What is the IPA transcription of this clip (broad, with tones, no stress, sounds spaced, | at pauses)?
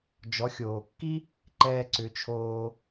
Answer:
d͡ʒ ɔ˩˧ xʲ oː˩ kː i˥ | ǃ ɛː˧ ǀ ʏ˩˧ t͡ʃʰ oː˧